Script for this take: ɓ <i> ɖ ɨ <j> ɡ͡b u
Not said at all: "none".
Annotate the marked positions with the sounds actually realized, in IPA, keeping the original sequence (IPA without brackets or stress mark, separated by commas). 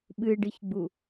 ɨ, ç